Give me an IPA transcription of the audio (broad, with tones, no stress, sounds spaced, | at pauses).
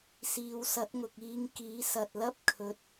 s iː˨˧ w s ɐ˨˥ t̚ ŋ ʊ˨ k̚ iː˧ ŋ k iː˨˥ s ɐ˨ t̚ l ɐ˥ p̚ kʰ ɵ˨˥ t̚